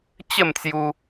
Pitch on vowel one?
falling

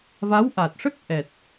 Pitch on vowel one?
rising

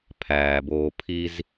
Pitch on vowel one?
low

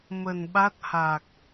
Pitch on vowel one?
low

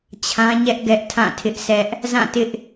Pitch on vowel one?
high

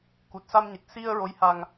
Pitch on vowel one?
low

